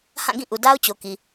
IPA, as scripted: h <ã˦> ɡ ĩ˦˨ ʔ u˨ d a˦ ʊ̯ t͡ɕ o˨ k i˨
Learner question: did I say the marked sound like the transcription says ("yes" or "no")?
no